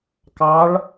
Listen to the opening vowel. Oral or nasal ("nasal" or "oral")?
oral